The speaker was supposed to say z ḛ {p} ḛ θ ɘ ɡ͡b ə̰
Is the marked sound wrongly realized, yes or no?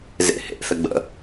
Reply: yes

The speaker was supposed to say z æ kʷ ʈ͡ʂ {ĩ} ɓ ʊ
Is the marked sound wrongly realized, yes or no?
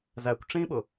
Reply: no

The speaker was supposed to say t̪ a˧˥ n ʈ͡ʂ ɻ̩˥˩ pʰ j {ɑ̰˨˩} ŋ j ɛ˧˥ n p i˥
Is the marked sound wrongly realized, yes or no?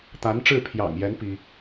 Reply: no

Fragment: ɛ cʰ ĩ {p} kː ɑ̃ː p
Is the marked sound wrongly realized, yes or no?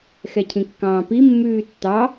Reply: yes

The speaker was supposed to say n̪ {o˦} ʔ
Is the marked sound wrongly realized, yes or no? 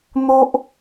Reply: no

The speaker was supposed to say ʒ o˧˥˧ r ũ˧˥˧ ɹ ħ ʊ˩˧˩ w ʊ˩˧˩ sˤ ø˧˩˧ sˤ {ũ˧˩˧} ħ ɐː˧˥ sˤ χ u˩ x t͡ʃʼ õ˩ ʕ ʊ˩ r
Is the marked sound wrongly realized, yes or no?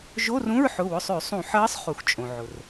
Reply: no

